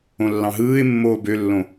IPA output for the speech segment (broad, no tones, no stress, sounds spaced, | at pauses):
õ lː ɑ̃ ɦ ɯː ɪ̯ mː oː b ø lː õ